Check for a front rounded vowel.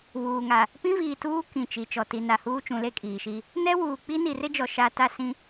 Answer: absent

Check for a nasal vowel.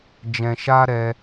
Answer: present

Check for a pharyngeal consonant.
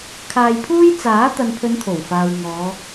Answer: absent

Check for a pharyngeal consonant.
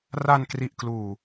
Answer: absent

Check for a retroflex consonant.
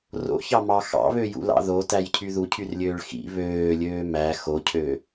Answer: present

